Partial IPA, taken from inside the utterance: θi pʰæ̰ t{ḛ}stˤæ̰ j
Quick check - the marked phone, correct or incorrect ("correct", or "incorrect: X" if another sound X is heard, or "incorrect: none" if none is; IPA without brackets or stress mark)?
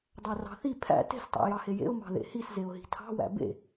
incorrect: e̤